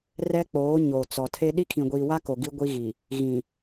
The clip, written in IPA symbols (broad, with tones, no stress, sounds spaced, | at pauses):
r ɛ˦ k͡p oː˨˦ ɲ o˨ t͡s ɔ˨ tʰ e˦ ɗ i˦ kʰ ĩ˨ ɡʷ iː˨ w a˦ k o˨ ɡ i˦ ɡʷ i˦ ɣ i˨ | ɣ ĩ˨